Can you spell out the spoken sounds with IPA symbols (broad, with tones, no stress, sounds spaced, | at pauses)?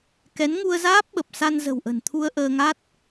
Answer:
k ɛ˨˦ n ŋ u˧ ə̯ z aː˦˥ p̚ ɓ ə˨˩ p̚ s a˧ n z ə̤˨˩ w ʔ ə̤˨˩ n t̪ʰ u˧ ə̯ ʔ əː˧ ŋ a˦˥ t̚